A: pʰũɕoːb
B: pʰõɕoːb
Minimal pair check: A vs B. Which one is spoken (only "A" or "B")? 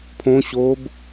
B